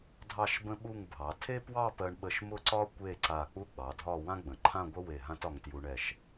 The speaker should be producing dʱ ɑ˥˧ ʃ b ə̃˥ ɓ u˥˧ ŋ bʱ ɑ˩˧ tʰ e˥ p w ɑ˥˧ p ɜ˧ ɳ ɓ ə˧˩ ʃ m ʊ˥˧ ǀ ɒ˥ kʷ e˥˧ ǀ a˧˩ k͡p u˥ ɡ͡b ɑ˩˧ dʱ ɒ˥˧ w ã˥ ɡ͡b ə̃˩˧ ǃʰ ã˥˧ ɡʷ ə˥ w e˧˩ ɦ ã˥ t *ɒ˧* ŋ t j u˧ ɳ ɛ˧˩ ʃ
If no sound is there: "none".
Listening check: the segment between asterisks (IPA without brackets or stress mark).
ɒ˧